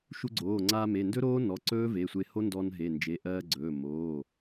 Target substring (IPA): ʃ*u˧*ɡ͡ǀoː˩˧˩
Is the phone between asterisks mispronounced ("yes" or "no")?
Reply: no